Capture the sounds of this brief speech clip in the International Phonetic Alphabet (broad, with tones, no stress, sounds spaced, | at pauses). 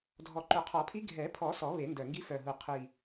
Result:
dʱ ɔ˨˩ ǃ ʊ˨˩˦ qʰ ɔ˨˩˦ pʰ i˧˥ ɡʱ ɛ˨˩˦ pʰ ɔ˨˩˦ s ɔ˨˩˦ β e˨˩˦ n d œ˨˩ ŋ ɡ i˧˥ f œ˨˩ ɦ u˨˩ qʰ i˨˩